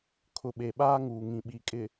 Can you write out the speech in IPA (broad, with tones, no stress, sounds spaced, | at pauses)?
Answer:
kʰ ʊ˨ ɓ e˨ ɓ aː˦ ŋ uː˨ ŋ ĩ˨ ɓ i˨ kʼ ɪ˨